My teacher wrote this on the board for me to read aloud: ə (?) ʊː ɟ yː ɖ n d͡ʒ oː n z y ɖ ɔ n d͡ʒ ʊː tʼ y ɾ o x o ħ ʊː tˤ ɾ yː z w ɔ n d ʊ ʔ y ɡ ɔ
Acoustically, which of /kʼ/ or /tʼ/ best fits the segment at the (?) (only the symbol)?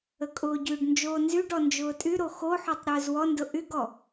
kʼ